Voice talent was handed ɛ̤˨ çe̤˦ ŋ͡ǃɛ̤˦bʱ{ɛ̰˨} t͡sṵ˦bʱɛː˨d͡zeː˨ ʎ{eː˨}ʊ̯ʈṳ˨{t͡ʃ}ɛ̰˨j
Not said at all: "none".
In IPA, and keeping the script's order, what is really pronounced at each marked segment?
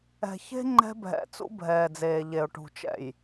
ɛ̰˨, e˨, t͡ʃ

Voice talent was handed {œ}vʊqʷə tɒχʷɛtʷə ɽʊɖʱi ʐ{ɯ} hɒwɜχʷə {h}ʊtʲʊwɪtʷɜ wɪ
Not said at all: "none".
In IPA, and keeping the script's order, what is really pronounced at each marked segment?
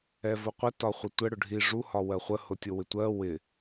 ɛ, u, h

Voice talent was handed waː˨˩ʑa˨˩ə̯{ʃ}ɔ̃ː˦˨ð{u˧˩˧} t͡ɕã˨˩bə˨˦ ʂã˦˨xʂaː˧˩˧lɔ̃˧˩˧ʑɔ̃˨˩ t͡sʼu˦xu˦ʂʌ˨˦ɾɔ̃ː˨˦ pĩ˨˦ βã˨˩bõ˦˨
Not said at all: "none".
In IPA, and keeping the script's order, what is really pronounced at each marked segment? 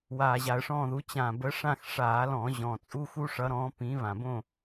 ʂ, u˨˦

